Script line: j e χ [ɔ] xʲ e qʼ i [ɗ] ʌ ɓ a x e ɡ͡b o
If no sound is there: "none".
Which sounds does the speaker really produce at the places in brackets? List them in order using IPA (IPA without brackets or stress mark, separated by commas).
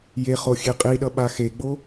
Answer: o, ɗ